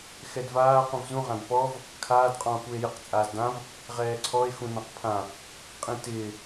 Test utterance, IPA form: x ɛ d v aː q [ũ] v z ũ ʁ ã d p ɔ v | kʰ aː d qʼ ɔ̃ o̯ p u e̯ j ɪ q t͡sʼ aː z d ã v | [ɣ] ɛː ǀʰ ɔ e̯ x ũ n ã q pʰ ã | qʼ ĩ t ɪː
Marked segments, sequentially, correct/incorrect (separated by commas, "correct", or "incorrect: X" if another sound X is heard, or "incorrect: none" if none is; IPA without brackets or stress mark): correct, incorrect: ʁ